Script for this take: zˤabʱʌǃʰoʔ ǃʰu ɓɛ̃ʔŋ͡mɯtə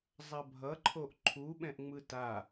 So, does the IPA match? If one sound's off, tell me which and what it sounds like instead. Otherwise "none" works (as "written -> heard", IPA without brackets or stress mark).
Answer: ə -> a